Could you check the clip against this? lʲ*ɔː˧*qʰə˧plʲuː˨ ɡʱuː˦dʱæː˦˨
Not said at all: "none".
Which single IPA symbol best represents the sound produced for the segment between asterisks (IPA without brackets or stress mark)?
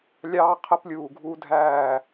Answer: ɑː˧